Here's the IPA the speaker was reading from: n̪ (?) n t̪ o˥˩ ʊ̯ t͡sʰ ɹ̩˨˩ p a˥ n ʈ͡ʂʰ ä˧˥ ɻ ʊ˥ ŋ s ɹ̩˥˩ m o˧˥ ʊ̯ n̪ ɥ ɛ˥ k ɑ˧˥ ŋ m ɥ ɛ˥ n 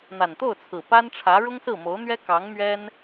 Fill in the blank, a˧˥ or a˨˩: a˨˩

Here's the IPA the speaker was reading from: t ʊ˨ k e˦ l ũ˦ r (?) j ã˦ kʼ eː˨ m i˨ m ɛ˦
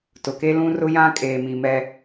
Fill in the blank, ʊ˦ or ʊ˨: ʊ˦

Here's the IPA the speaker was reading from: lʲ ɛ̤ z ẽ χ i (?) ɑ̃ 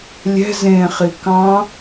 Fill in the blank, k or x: k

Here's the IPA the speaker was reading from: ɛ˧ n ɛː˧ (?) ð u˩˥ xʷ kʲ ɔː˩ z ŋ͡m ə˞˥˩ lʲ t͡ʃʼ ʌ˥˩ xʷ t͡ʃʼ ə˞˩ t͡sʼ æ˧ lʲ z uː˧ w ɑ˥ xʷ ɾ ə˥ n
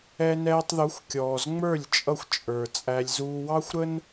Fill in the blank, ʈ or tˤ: tˤ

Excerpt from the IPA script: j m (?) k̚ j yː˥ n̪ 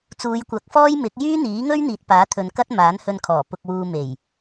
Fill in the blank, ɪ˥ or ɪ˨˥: ɪ˨˥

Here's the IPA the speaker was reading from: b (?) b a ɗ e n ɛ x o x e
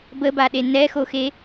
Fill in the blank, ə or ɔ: ə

